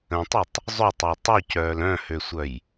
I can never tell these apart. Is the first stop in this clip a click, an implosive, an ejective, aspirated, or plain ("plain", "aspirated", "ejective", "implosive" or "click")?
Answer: plain